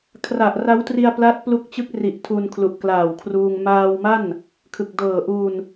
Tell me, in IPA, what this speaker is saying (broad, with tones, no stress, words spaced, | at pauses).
kʰra˨˩ʔra˦˥wtri˧a̯ pla˦˥t̚plu˦˥k̚t͡ɕɯ˦˥k̚ri˨˩ʔ tʰu˧nkʰlu˨˩ʔklaː˨˩wkʰruː˧ŋ maː˧wma˥˩n | kʰɯ˨˩k̚dɤː˨˩ ʔu˧n